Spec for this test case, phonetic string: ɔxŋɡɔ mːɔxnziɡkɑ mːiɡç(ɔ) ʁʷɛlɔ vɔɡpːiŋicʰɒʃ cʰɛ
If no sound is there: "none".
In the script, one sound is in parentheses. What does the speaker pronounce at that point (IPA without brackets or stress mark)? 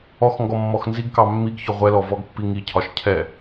ɔ